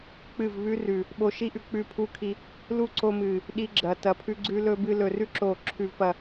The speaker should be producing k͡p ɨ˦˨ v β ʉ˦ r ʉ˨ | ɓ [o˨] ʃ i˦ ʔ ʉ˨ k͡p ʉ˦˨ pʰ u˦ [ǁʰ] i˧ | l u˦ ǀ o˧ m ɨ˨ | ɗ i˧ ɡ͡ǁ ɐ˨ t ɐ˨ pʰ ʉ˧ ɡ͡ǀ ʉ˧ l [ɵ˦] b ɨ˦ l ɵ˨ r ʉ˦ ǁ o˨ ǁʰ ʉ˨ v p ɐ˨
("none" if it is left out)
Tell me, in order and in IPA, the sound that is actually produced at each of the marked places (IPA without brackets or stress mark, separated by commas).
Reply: o˧, kʰ, ɵ˦